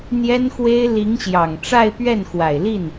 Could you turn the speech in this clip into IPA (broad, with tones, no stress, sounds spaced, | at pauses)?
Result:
n̪ j ɛ˥ n x w e˥ ɪ̯ l i˧˥ ŋ ɕ j ɑ˨˩ ŋ ʈ͡ʂ a˥˧ ɪ̯ p ɥ ɛ˥˩ n x w a˨˩ ɪ̯ l i˥˩ n